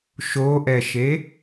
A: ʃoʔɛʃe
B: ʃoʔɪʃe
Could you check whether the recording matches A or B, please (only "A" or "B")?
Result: A